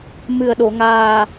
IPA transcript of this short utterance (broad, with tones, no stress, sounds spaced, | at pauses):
m ɨ˨˩ ə̯ ɗ o˨˩˨ ŋ aː˨˩